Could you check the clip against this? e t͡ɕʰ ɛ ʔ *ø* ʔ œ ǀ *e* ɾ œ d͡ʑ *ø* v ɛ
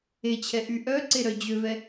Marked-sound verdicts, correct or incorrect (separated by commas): incorrect, correct, correct